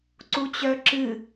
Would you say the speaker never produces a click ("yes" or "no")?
no